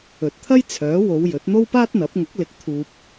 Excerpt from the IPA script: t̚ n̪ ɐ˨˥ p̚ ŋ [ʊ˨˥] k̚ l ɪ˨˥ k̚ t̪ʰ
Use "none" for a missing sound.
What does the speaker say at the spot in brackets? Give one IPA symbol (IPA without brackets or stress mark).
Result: ʊ˨˥